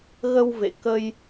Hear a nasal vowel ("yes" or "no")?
no